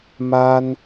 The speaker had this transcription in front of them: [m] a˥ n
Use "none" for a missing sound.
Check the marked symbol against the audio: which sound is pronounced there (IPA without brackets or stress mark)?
m